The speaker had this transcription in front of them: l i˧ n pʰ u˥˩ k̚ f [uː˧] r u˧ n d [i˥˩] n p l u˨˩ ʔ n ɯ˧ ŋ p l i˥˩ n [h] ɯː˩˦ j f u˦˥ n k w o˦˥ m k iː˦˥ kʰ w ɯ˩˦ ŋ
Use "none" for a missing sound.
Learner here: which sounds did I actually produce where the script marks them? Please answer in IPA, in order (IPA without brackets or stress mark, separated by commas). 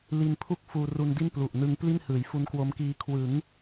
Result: uː˧, i˥˩, h